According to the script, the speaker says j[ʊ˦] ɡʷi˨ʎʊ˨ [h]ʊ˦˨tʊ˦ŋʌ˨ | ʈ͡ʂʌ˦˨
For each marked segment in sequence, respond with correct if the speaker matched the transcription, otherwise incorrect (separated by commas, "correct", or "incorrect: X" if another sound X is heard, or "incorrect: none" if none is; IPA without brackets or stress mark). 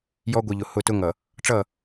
incorrect: ɔ˦, correct